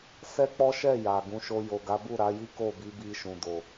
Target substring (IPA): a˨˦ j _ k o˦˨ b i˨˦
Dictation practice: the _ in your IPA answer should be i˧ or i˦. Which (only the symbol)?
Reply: i˦